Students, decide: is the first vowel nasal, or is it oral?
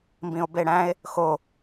nasal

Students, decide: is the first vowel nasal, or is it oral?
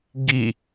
oral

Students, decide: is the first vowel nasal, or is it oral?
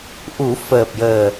oral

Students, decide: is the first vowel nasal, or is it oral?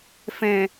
nasal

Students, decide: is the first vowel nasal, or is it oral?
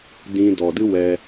nasal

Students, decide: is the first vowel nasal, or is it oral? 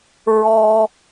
oral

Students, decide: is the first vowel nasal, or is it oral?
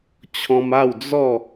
nasal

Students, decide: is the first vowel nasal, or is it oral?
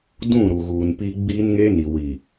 nasal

